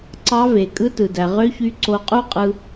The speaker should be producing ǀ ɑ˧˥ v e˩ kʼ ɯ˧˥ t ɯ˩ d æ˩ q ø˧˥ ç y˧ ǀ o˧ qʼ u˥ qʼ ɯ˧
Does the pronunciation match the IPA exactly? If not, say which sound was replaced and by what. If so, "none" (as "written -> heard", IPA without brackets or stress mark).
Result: q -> ʁ